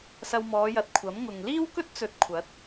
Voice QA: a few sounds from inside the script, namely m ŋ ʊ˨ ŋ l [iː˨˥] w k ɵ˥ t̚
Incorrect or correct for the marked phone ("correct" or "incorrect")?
incorrect